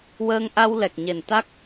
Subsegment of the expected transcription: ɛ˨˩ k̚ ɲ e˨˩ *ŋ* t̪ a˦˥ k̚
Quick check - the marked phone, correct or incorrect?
incorrect